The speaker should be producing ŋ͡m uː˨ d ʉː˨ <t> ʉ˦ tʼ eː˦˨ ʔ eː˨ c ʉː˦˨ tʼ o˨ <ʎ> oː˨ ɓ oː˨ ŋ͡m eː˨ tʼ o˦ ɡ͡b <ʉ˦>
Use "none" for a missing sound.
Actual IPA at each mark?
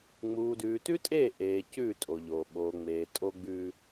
t, ʎ, ʉ˦

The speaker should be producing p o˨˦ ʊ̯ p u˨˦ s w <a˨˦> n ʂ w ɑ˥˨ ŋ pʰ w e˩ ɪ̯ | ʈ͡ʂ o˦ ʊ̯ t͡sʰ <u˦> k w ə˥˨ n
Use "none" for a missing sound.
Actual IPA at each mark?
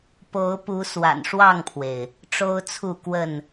a̰˨˩, u˥˨

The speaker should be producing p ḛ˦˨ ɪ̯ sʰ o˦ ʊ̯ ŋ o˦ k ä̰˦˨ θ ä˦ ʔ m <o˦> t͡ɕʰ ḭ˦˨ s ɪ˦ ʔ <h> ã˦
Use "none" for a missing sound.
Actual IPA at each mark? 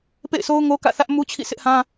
u˦, h

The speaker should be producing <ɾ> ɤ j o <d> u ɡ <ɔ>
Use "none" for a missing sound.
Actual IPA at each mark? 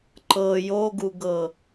ǃ, ɡ, ɤ

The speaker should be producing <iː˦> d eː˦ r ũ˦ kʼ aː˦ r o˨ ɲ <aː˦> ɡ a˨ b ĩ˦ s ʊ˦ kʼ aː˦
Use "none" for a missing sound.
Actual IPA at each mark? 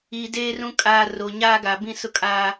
iː˨, aː˦

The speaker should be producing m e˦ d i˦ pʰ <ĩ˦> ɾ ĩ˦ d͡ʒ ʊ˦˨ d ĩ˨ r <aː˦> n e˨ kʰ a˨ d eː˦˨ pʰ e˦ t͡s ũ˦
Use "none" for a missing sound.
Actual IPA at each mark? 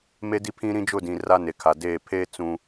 ĩ˦, a˦

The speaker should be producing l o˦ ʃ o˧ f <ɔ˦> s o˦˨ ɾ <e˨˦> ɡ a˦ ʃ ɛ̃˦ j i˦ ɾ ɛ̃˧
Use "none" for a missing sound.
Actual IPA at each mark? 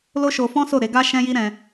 ɔ̃˦, e˨˦

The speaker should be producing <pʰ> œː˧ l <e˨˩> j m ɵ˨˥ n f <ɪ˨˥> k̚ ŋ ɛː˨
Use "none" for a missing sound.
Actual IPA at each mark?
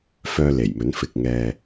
f, e˨˩, ɪ˨

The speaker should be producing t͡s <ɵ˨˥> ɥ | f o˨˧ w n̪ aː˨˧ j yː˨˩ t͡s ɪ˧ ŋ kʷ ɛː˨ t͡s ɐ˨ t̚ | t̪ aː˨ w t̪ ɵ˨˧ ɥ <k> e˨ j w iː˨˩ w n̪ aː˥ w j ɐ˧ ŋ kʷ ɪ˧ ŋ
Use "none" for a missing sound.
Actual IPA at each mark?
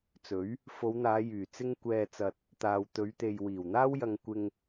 ɵ˨˥, t̪

